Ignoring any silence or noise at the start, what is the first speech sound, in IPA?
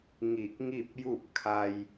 ŋ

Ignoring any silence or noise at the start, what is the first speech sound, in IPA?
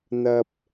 n̪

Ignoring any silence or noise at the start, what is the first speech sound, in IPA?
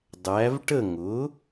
dˤ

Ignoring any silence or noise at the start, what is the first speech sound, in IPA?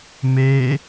m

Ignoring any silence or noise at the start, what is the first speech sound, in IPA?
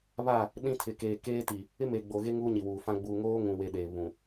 β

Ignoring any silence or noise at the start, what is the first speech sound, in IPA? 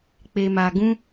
k͡p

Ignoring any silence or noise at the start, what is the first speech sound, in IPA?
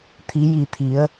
t̪ʰ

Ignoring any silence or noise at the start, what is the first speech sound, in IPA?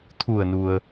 t̪ʰ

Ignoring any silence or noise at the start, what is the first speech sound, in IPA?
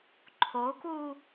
ǃʰ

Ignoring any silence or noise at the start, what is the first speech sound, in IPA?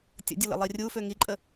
tʲ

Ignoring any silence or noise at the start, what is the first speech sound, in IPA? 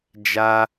d͡ʒ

